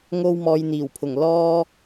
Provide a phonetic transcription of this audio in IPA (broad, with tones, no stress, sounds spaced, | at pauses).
ŋ o˧ w m ɔː˨ j n̪ iː˨˩ w pʰ ʊ˨˩ ŋ l ɔː˧